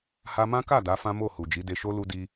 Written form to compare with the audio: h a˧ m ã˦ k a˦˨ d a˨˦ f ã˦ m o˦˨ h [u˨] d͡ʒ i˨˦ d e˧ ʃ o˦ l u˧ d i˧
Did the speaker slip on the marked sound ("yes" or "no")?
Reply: no